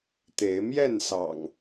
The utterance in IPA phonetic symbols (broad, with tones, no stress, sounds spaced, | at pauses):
t̪ e˨˦ ɪ̯ m j ɛ˥˨ n s ɑ̰˨˩ ŋ